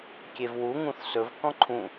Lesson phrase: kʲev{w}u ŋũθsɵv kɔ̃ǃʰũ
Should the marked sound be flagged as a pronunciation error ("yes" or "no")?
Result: no